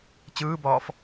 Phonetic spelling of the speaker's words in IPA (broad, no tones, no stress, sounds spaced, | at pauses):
t͡ɕ ɯː b ɒː f